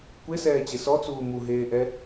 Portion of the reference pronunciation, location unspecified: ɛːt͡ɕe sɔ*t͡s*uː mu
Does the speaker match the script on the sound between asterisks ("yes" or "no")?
yes